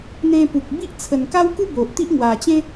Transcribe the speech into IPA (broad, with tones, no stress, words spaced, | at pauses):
n̪ẽ˧pu˨k̚bi˦ʔ t͡sʰə˨˩nka˦wku˦ bo˨ʔt̪i˦ʔ ŋwa˨˩t͡ɕẽ˦